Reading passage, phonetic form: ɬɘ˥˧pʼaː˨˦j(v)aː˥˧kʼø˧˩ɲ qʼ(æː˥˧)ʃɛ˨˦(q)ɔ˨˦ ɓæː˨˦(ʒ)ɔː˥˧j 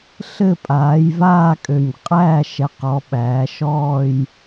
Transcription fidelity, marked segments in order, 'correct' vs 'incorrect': correct, correct, correct, incorrect: ʃ

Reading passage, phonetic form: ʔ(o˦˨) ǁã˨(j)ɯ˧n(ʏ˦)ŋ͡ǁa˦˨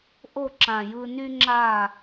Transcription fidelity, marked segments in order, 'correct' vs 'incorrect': correct, correct, incorrect: y˦

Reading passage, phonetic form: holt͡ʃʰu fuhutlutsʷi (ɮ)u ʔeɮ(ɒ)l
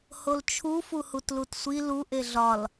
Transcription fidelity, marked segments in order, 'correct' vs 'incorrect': incorrect: l, correct

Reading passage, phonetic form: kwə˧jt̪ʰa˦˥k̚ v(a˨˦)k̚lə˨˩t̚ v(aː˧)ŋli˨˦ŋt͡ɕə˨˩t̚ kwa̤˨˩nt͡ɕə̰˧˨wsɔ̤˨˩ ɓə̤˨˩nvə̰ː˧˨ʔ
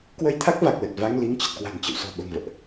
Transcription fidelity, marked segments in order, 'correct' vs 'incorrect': incorrect: a˨˩, incorrect: a˧

